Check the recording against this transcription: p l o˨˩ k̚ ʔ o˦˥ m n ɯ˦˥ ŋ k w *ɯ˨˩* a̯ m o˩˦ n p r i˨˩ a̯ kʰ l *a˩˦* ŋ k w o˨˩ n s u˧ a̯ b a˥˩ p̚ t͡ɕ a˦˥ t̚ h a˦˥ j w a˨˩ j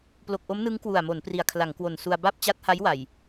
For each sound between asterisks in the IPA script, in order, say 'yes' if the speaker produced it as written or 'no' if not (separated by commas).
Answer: no, yes